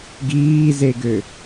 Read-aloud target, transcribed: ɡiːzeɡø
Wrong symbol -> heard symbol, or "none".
none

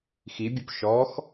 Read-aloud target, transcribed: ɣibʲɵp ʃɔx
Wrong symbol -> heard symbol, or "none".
ɣ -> x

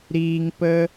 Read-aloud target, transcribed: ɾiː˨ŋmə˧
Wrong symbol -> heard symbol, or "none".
m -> p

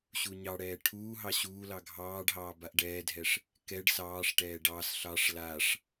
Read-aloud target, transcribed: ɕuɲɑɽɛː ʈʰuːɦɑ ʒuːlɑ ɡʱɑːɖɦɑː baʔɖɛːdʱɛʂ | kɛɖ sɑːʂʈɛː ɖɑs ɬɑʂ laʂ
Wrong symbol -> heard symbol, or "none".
ʒ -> ɕ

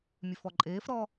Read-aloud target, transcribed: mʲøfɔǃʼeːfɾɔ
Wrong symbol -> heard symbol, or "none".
none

